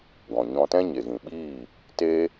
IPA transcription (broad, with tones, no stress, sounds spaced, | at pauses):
ɡ ɔ̃˨ ɲ ɔ̃˧ t ɛ̃˦ ɲ e˨ ɣ ĩ˨ ɓ iː˦˨ | t eː˦